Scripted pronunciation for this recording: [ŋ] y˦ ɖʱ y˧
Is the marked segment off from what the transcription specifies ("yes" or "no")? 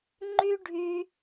yes